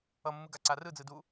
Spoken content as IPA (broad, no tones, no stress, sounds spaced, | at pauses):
ʌ mː ɯ ɡ a ǀ a r ɯ d͡z ɯ d u